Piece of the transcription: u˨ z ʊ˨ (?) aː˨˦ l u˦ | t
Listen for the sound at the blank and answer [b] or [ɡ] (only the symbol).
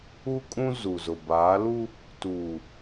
b